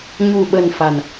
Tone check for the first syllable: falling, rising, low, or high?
low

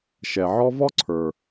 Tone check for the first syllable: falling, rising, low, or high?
low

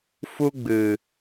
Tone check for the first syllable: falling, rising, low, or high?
high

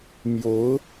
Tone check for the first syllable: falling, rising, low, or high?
rising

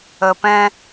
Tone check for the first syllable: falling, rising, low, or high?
low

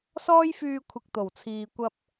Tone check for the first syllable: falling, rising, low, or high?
high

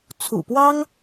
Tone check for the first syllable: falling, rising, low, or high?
low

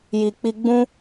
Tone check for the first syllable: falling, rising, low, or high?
low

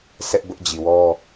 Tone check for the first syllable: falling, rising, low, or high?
high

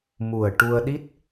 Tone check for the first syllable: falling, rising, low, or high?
low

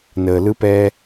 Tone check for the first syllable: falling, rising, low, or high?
low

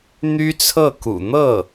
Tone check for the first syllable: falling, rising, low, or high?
high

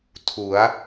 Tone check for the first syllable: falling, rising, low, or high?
rising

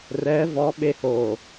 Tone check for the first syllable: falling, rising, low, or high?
rising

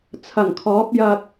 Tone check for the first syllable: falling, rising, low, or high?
low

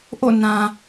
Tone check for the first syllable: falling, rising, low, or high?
falling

